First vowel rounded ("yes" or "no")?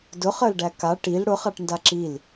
yes